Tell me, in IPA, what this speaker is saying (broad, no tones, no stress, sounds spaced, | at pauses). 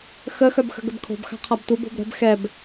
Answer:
x ə x œ b x ə̤ ɡ ə b kʰ o̤ b x a̤ qʰ a b tʷ i b o̤ b ɾ ə̤ b x ɛ b